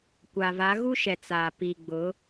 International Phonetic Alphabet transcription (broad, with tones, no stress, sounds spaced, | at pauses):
kʷ a˨ v a˨˦ ɣ u˦ ʃ ɛ˨ t͡s a˨ p iː˨ ɡ͡b ʊ˨˦